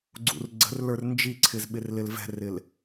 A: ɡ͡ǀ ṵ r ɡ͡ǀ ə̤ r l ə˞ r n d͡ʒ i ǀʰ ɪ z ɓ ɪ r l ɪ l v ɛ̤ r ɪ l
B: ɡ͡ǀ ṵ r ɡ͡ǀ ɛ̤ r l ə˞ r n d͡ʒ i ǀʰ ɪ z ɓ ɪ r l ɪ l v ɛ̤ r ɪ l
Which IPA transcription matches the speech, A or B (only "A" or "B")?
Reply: A